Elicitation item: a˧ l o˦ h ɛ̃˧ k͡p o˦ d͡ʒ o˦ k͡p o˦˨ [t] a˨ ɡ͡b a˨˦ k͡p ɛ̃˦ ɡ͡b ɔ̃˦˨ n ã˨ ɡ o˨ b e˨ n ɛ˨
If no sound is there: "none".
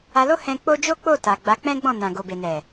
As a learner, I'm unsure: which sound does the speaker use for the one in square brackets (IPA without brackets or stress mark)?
t